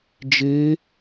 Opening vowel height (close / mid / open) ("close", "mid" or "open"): mid